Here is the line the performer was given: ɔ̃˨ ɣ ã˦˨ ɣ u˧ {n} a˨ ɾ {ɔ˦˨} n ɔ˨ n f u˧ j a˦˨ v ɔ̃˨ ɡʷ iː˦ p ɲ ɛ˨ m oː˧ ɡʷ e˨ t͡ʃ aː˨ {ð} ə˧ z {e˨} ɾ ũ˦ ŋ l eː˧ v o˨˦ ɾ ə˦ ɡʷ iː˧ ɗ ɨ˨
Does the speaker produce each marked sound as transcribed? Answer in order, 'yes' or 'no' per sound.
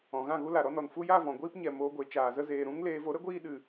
no, no, no, no

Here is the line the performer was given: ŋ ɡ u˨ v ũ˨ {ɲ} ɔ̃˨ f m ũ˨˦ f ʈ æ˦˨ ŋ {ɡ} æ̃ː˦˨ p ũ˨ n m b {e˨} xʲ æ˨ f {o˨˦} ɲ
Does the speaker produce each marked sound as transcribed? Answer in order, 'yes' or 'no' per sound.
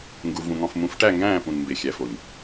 no, yes, yes, no

